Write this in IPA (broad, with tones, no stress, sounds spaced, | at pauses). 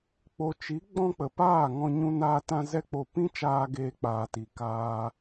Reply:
k͡p o˨ t͡ʃ i˨˦ ɡ͡b ɔ̃˦ k͡p ə˨ p aː˦˨ ŋ ɔ̃˧ ɲ ũ˦ n aː˦ t ã˦ z ɛ˦ k͡p o˧ p ĩ˦ t͡ʃ aː˧ ɡ eː˧ k͡p aː˨ t i˨ k aː˧